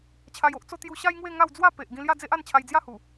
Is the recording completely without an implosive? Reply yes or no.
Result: yes